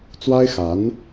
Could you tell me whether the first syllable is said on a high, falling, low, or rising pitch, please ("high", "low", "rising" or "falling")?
high